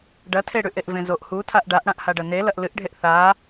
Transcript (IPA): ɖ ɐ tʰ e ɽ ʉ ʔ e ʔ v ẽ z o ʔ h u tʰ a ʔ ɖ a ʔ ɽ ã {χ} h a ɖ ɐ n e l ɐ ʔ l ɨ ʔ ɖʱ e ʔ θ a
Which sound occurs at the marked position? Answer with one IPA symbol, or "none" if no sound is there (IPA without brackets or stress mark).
ʔ